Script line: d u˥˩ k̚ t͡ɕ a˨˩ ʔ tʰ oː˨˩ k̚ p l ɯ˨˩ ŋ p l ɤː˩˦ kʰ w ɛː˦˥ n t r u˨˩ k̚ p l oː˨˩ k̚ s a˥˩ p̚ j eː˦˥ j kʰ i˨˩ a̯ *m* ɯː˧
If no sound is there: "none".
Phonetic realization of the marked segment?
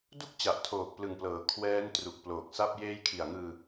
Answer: ŋ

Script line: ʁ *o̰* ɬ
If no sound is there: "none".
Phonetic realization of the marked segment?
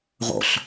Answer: o̰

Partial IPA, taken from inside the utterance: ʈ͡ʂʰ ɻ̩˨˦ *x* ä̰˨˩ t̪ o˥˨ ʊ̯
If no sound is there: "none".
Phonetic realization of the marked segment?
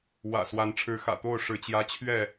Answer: x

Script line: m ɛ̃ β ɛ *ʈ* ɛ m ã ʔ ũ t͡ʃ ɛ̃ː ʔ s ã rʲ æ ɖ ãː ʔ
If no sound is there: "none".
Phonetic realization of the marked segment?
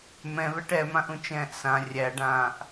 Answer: ʈ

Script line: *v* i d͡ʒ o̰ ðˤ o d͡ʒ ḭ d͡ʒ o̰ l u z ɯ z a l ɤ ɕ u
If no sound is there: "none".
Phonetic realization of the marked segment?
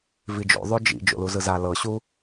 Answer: v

